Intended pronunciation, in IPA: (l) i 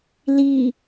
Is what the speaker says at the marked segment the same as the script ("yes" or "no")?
yes